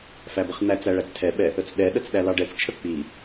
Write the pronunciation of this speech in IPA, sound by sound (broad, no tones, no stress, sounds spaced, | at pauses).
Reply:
f æ b ə χ n̪ æ t͡s æ ɭ æ t͡s tʰ ɛ ɓ ɛ | ə t͡s ɗ ɛ ɗ ə t͡s ɗ æ l ɑ ɖ ɛ t͡s t͡ʃʰ ə k͡p i